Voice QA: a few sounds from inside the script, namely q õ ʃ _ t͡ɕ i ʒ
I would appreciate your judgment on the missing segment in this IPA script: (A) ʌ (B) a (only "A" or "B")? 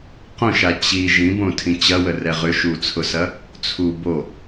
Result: B